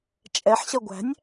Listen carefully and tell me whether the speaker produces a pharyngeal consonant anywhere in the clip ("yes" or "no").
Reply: yes